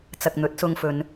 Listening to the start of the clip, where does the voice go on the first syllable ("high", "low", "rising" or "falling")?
low